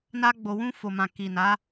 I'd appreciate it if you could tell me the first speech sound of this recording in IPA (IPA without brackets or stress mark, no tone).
n